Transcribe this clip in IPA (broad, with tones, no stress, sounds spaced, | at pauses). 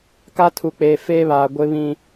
k a˦ tʰ u˨ k͡p eː˨ f eː˦ β aː˨ ɡʷ ɪ˦ β ĩ˦